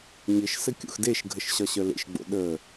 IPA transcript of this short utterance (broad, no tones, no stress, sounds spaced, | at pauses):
ɲ ɘ ʃ s ɘ kʲ o̰ x d e ʃ ɡʱ ə ʃ ɕ ɒ ɕ œ l ḛ ʃ ɡ͡b o̰ ɗ ə